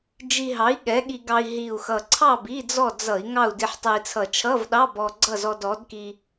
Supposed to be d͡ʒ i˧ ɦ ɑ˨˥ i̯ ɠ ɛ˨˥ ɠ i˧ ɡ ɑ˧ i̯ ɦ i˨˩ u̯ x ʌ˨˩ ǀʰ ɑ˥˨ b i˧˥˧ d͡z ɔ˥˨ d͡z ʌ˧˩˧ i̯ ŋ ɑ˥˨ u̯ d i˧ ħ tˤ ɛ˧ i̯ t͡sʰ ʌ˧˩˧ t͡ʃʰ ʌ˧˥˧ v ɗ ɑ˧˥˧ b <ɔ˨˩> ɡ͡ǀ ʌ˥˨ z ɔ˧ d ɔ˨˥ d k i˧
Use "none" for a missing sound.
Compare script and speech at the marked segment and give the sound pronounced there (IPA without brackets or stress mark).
ɔ˧